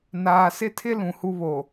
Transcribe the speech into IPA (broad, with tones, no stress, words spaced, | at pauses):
naː˨sɪ˦tʰɪ˦ lũ˨hu˦ βo˨